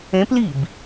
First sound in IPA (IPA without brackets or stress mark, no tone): ẽ